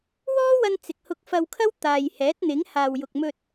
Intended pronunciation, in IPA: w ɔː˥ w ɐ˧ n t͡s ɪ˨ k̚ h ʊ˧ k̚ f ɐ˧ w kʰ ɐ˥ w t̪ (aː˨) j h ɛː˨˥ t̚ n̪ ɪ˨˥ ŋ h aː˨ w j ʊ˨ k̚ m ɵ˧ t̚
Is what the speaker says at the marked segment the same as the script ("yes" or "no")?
yes